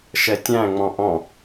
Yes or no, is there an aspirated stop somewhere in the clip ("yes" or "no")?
no